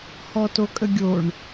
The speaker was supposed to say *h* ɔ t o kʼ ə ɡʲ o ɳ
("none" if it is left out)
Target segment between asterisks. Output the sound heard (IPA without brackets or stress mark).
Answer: h